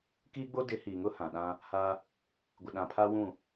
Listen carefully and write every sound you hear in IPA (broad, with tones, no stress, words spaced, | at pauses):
kiː˦ɡ͡bo˦dɪ˨˦ hiː˨ŋʊ˦hã˨ ɗã˦ | ha˦ | ɡʷɪ˨ɗã˨pʰa˦wũ˦˨